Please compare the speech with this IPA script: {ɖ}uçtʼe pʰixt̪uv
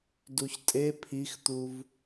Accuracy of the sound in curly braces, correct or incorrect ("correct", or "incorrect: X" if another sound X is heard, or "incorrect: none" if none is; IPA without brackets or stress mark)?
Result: incorrect: d